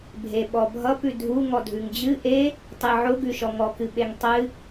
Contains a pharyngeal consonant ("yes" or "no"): yes